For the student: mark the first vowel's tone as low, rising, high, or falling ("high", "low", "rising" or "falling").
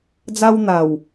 high